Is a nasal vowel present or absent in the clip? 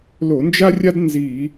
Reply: absent